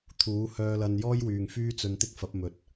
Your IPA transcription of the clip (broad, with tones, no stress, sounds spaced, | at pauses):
t̪ʰ uː˨˥ h œː˧ l ɐ˧ n j ɔː˥ j w yː˨ ŋ f yː˥ t͡s ɵ˧ n t̪ ɪ˥ k̚ f ɐ˨˥ p̚ m ɵ˨ t̚